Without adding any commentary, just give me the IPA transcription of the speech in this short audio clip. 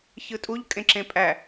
ç ɯ tʼ u ʎ kʼ ẽ ǁ ẽ pʼ æ

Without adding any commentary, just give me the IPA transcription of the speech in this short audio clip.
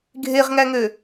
ɡʱ e ʁ ŋ æ ŋ ø

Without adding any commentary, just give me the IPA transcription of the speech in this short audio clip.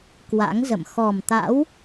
k w a̰˧˥ ŋ z ə̰˧˨ m x ɔ˨˩ m t̪ a̰˧˥ w

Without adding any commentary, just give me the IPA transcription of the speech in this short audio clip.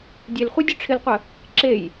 dʲ e l χʷ e dʲ ʊ ʈ͡ʂʰ ɪ l qʷ ə | ǁ e j

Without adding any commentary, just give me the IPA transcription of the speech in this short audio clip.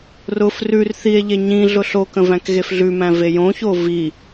r ʊ f r ʉ r θ i e̯ ʎ e ɲ ĩ ɮ ʊ ɬ o k ə̃ v æ̃ k ɣ e f ɮ ʉ m æ̃ v e j õ ç o v i

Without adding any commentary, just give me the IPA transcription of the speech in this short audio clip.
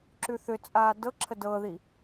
ǁ ʉ θ ʏ t͡sʼ aː d ɤ ǁʰ ə d ɤ ð i

